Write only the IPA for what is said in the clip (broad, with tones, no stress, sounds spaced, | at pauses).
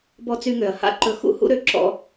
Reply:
b ɔ˧ t͡s y˧ ŋ ø˨ ɐ̯ h a̰˦ ǃ ɵ˧ x ṵ˦ h ṵ˦ ɾ ø˧ ǁ ɔ̰˧